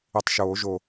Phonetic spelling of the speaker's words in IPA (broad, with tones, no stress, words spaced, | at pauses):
i˧˩tˤʃoː˨˩˦ʒo˧˩